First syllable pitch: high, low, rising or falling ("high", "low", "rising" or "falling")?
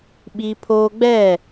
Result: high